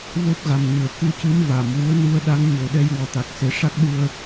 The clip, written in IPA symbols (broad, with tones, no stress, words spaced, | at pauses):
vo˦˥p̚ɣa˨˩mɲɨ˨˩˨ə̯ ku˧˥cɨ˧˥m va˨˩˨mwu˧˥ə̯ nu˧ə̯ɗa˧˥ŋ ɲo˨˩ɗɛ˧j wɔ˨˩t̪a˨˩k̚ se˨˩˦ʂa˦˥k̚ ɗu˧ə̯